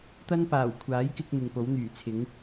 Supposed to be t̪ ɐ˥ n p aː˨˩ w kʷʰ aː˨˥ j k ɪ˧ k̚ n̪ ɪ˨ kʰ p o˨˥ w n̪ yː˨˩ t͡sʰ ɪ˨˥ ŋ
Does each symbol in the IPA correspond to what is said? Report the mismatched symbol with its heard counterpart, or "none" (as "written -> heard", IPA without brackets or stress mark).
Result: kʰ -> ŋ